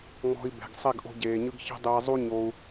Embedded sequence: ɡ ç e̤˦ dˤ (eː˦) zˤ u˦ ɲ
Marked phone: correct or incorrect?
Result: incorrect